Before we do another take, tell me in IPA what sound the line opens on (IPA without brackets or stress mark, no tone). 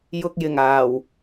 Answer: j